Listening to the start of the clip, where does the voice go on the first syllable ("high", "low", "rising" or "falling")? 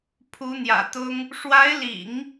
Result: rising